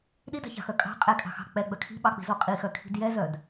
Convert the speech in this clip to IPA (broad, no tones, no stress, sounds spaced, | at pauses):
ɗ i d ɑ̤ ç ɑ̤ x œ kʼ ɑ̤ qʼ ɛ kʼ ɑ̤ x ɑ̤ k͡p ɛ ɡ͡b œ kʰ i̤ ɓ ɑ k͡p i̤ z o qʼ i x œ kʰ i̤ d j ɛ z œ d